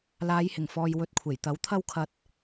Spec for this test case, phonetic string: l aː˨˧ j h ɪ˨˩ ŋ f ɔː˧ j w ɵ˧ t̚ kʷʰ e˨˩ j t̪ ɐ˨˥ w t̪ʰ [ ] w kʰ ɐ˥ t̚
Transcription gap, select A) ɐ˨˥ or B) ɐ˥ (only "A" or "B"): B